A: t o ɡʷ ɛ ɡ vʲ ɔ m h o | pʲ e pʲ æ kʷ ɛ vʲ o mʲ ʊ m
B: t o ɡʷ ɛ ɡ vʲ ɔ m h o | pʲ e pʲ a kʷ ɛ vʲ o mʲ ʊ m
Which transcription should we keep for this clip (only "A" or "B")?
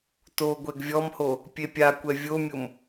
B